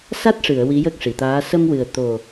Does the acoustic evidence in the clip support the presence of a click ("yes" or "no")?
no